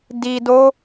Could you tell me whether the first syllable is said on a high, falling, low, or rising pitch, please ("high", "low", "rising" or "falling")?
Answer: low